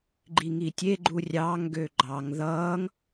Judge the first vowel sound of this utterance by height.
high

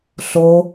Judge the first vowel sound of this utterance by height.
mid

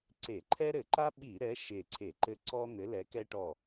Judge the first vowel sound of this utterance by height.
mid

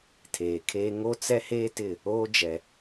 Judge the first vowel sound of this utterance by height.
mid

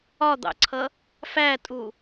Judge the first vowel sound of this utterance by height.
low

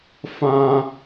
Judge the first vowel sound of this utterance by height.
low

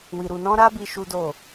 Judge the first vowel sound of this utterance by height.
high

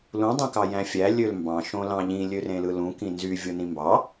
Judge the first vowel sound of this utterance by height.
high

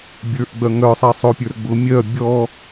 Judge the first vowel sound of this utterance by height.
mid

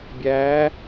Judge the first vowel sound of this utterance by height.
low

